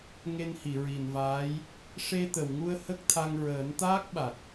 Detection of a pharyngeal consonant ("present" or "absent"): absent